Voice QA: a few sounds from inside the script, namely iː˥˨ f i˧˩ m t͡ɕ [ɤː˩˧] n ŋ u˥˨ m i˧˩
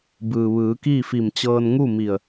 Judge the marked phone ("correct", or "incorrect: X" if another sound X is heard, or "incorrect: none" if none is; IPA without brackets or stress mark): incorrect: ɤː˧